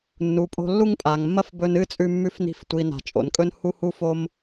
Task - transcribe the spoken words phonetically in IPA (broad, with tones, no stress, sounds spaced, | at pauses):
nː u˨ pʼ o̤˧ lː u˦ ŋ pʼ a˨ ŋ mː ɐ˦ f b ɵ˧ n ɨ˦ t͡sʼ ʉ˧ mː ʉ˧ f n i̤˧ f tʷ i˨ n a̤˨ t͡ʃʼ o̰˨ n kʼ ɵ˦ n h u˦ h u˦ f o˦ m